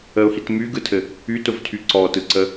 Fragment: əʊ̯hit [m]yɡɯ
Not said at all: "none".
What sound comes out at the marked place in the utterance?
m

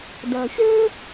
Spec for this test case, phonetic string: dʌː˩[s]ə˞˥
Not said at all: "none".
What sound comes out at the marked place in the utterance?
ɕ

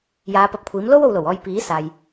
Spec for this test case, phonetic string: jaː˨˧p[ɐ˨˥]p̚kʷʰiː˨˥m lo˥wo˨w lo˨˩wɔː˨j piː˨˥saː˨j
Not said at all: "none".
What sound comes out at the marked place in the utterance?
ɐ˨˥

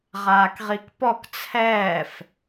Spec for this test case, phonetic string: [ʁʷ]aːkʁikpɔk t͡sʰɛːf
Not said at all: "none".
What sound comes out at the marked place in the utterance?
ʁ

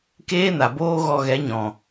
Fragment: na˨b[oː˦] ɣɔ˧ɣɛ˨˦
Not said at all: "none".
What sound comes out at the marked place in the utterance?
oː˦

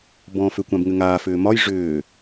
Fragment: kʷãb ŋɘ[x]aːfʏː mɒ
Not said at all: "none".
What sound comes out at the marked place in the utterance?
ŋ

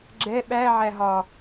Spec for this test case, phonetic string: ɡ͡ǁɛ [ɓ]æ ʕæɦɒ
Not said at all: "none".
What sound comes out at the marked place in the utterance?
ɓ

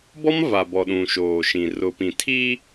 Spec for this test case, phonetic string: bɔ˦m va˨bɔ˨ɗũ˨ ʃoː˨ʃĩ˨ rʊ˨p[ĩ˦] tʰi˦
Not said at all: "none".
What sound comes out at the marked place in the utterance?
ĩ˨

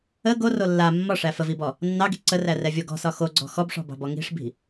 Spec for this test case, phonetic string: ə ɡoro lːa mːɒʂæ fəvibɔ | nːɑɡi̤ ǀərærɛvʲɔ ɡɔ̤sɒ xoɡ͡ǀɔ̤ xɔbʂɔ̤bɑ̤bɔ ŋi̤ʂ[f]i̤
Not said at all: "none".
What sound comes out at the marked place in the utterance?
b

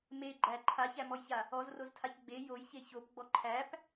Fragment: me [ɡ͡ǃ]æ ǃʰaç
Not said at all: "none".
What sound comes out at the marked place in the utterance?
ɡ͡ǃ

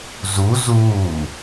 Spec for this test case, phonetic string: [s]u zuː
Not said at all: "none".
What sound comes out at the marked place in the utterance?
z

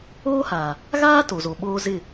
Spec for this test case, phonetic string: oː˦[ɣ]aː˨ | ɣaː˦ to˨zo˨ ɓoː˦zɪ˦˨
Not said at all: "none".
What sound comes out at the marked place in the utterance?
h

